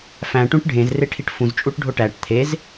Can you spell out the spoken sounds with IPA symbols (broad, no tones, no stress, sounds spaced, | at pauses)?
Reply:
f æ̃ ʈ ũ ʈ ɖʱ ẽ z r e ʈʰ i ʈ f ũ z t͡ʃʼ u ʈ ɖʱ o ʈ æ ʈ t̪ʰ e z